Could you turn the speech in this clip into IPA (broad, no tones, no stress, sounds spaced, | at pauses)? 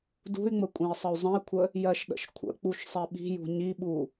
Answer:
d ṳ y̯ ŋ͡m ə kʷʼ ɛ̃ i̯ sˤ ə y̯ zˤ ə̃ i̯ kʷʰ ə | j ɜ ʃ ɗ ə̰ ʃ kʷʰ ə̰ k͡p u ʃ sˤ ɛ ɓ i̤ j ṳ ɲ i ɓ u